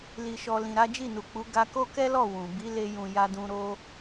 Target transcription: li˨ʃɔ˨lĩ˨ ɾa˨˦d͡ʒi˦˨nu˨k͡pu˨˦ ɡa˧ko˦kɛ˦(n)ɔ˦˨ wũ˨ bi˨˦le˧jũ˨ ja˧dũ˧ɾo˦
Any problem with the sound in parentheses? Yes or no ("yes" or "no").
yes